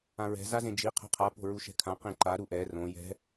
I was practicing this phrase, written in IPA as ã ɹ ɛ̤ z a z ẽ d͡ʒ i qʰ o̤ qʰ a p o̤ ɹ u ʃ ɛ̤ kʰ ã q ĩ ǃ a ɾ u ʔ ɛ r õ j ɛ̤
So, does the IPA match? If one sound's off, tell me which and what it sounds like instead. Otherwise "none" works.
none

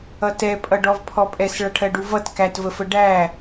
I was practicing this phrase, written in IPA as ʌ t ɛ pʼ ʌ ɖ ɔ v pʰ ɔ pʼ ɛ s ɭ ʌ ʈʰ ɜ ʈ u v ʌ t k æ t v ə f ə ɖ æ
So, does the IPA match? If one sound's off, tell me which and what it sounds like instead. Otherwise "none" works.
ʈ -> ɖ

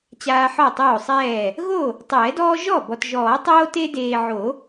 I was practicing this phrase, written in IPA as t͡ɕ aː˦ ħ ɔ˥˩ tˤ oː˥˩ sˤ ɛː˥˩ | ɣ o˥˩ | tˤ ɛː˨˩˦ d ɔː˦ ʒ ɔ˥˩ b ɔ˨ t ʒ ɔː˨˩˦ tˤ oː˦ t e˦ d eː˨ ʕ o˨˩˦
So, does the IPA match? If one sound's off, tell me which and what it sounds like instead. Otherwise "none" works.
none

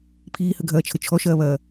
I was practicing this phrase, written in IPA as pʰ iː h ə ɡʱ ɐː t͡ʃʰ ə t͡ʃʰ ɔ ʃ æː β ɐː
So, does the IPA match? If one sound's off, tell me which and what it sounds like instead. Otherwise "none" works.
æː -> ɐː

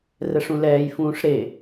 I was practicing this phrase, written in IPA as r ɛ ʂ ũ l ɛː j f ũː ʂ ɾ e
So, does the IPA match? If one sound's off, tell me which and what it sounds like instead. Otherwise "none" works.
none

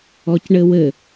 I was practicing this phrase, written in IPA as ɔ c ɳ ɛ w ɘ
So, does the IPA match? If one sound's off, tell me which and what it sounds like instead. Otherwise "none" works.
ɛ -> ɘ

